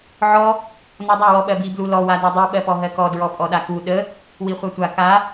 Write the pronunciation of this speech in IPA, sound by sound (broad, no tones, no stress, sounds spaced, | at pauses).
ʕ ɔ | n ɔ dˤ a w ɔ ɓ ɜ b i b l u l ɔ w a d ɜ dˤ i ɓ ɜ p ɔ ɦ ɜ k ɔ d ɹ ɔ pʼ ɔ ɗ a k u ɗ ə | w i χʷ ɜ tʷ a k a